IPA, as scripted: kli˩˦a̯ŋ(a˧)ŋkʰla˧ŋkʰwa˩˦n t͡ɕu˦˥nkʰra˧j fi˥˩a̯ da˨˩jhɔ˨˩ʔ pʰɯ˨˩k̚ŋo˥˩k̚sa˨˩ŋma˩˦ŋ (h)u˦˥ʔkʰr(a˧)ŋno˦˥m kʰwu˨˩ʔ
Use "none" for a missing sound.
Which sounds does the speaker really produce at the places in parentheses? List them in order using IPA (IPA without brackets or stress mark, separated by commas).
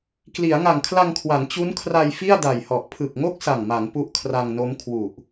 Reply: a˨˩, p, a˧